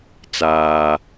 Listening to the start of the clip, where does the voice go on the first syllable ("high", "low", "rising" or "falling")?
high